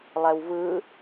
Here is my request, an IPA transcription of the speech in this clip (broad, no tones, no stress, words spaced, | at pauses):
lˠɛwvɯ